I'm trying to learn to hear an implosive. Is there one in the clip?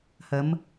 no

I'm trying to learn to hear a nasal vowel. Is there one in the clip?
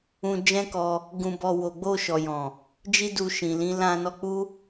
yes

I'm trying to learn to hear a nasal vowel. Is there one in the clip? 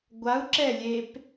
no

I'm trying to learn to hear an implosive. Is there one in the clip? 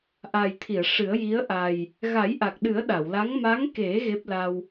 yes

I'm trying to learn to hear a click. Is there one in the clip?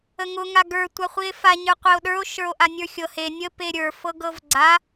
yes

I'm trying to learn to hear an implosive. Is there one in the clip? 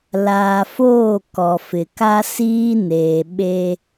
yes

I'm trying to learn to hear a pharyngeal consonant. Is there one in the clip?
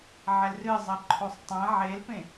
yes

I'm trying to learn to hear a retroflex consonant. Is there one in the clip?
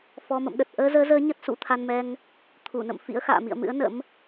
no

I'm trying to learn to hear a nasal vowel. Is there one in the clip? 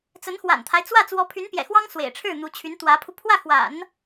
no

